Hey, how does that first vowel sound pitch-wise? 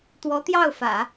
rising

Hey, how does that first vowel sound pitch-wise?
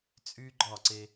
high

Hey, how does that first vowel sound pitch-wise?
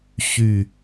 falling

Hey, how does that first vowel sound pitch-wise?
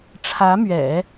rising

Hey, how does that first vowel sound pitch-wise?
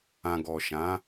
low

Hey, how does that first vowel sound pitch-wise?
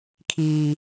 high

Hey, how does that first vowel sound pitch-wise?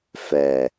low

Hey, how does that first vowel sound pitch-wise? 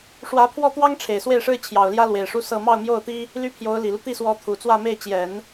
rising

